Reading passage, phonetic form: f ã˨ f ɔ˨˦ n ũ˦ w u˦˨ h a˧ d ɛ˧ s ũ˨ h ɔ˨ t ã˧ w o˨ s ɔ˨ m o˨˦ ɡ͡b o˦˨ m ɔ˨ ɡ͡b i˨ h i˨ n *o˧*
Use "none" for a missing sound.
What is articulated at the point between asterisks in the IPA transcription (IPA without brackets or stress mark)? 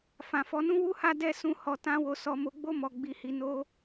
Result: o˧